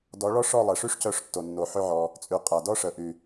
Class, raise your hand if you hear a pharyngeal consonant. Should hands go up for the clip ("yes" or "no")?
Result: yes